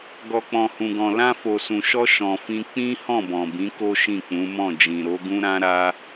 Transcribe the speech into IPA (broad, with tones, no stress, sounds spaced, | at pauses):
ɡ ɔ˨ k͡p ɔ̃˨ h ũ˨ ɡ ɔ̃˨ l ã˧ f o˨ s ũ˨ ʃ ɔ˧ ʃ ɔ̃˨ f ĩ˧ k͡p ĩ˦ h ɔ̃˦˨ b ɔ̃˨ b ĩ˨˦ k o˦ ʃ ĩ˦˨ k͡p ũ˨˦ m ɔ̃˦˨ d͡ʒ ĩ˨ ɾ o˨˦ ɡ ũ˦ ɾ ã˦ ɾ a˦